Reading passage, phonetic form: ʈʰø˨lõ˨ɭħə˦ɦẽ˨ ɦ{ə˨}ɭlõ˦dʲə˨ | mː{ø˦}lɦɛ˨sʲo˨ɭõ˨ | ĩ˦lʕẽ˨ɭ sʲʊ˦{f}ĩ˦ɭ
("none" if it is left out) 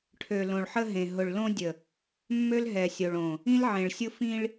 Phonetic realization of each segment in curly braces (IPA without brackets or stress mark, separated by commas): ʊ˨, ø˦, f